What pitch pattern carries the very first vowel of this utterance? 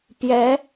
rising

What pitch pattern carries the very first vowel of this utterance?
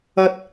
high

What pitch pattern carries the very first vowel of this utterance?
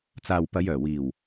low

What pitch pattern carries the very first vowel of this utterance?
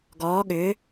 rising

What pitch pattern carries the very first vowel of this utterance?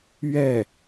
falling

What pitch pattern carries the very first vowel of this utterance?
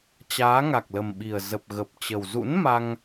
rising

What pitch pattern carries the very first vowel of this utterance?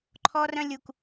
high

